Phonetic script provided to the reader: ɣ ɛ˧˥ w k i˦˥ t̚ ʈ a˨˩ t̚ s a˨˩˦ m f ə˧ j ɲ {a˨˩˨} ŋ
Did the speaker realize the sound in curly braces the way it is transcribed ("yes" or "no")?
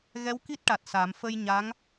no